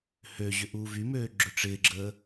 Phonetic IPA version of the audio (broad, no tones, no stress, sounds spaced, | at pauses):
h ø ʑ ʏ ʔ uː v y m øː ɡ͡ǁ ʏ ʈ͡ʂ ɪː ɡ͡ǁ əː